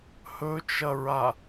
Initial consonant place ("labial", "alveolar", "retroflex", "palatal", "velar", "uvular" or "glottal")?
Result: glottal